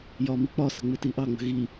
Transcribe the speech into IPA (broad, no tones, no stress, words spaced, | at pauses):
jɒːmik͡pɒsə̤ ŋ͡mɪtiʔɑŋ͡mə̤ ɣi